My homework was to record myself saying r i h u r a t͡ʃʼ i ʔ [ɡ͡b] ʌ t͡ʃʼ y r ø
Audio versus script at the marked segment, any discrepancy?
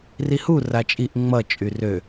yes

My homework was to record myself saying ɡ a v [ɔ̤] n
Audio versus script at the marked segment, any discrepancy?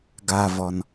yes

